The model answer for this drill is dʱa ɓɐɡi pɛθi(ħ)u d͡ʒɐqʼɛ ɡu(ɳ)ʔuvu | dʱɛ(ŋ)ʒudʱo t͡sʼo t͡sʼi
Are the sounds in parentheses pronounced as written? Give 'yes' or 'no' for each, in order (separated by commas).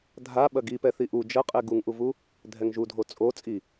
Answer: no, no, yes